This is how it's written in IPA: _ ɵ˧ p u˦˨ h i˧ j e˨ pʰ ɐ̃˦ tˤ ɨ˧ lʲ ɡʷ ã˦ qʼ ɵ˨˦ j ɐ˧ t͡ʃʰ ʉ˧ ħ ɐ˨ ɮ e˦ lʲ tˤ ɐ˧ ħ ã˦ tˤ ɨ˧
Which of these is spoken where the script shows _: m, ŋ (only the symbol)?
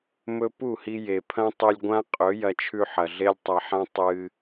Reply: m